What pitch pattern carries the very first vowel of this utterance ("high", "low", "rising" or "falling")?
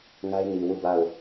high